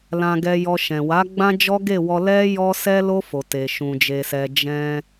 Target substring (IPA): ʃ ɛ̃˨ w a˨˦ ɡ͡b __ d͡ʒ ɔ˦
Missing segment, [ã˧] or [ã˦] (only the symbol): ã˦